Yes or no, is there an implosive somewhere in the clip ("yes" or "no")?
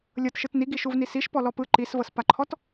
no